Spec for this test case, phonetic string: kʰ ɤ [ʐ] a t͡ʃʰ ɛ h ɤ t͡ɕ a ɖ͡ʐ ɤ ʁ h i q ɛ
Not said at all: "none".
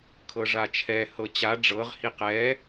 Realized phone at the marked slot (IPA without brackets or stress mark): ʐ